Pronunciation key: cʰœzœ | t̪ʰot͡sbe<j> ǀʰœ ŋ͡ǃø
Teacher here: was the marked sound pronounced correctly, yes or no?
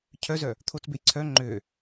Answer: yes